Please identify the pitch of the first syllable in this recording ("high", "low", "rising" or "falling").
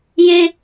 high